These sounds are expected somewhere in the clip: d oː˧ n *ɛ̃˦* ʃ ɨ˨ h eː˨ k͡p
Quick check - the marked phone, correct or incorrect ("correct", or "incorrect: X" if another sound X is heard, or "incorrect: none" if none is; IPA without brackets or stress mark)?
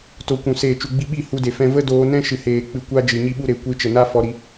correct